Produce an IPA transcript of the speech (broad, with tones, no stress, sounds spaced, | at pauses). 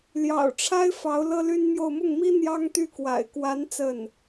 l j ɑ̰˨˩ ʊ̯ ʈ͡ʂʰ a˥ ɪ̯ f ɑ˧˥ ʊ̯ l ɤ˥ l y˥ n m j o˥˧ ʊ̯ m ʊ˥˩ ŋ m i˥ n̪ j ɑ˥ ŋ t̪ y˥˩ k w a̰˨˩ ɪ̯ k w a˧˥ n t͡s ə˥˩ n